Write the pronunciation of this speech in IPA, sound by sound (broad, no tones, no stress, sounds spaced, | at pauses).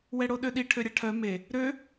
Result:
w ɛ ɽ o ɗ ø ɗ i ʈʰ ø ɾʲ a ʈʰ œ m e | ɾ ø